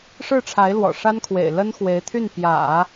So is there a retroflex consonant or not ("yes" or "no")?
yes